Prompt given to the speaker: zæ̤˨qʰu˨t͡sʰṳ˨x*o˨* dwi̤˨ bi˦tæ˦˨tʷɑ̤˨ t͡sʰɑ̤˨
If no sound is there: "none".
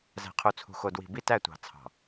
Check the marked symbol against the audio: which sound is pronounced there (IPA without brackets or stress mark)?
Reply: o˨